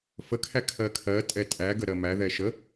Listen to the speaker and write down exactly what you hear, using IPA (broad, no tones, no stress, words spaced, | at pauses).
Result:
fəkʰæ kʰɜkʰɜ tʼɛtʼæɡə ɾɜmæðɛ ʃə